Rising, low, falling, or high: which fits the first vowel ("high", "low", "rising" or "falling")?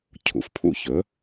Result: low